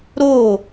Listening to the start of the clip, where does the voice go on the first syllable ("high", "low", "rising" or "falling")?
falling